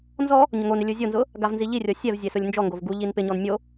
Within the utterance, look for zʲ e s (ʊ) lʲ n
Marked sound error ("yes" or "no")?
no